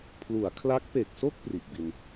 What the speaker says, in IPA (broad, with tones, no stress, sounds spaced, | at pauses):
pʰ l u˩˦ a̯ kʰ l a˦˥ k̚ p e˨˩ k̚ s o˥˩ k̚ p r i˨˩ ʔ b i˧ n